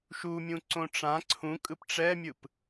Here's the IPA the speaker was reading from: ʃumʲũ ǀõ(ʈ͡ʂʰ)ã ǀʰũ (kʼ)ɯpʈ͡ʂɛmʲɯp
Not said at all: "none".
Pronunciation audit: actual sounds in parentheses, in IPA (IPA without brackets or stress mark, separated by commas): ʈ͡ʂ, kʼ